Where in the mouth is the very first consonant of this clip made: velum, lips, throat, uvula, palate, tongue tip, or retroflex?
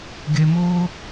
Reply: velum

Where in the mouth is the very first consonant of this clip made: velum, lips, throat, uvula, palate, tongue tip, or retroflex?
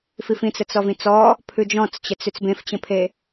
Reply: lips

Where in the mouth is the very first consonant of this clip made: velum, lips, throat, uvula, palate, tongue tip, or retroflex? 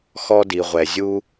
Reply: velum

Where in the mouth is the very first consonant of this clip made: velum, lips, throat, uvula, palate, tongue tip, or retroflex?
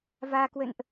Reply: lips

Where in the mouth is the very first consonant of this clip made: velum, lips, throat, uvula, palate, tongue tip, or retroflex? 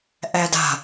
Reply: throat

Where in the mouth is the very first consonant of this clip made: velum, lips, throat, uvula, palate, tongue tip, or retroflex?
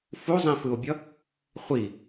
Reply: lips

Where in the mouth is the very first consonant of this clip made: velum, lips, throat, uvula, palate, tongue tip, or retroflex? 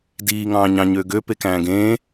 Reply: tongue tip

